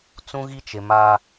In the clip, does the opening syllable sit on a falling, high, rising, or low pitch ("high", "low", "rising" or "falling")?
high